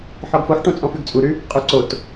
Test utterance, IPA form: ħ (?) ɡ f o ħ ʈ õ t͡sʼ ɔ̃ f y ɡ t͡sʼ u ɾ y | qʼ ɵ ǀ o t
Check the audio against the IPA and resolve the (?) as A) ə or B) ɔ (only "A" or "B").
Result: B